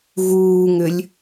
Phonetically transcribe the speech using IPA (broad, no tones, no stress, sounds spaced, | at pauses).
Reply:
ɣ uː ŋ ʏ lʲ